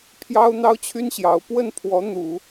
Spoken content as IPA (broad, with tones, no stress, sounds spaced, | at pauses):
pʰ j ɑ˥ ʊ̯ n̪ ɑ˥ ʊ̯ t͡ɕʰ y˥ n ɕ j ɑ˧˥ ʊ̯ p w ə˥˩ n pʰ w ɔ˧˥ n̪ u˨˩˦